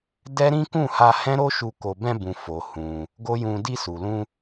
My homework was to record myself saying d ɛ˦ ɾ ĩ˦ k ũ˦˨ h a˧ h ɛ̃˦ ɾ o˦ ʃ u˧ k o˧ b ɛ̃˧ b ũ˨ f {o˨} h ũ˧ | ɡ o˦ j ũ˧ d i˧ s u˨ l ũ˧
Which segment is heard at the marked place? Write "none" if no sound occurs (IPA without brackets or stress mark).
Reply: o˨